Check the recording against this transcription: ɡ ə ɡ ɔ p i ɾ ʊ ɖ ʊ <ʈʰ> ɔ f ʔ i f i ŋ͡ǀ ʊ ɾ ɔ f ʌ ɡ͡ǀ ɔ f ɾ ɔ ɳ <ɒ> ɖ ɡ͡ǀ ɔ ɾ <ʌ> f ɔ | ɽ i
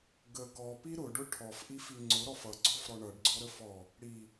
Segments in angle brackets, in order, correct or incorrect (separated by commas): correct, incorrect, incorrect